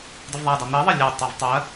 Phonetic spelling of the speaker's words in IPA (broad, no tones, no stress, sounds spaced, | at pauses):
d ə v ðˤ æ d ɑ n̪ i ðˤ ə lʲ e tˤ ɜ v tˤ ɜ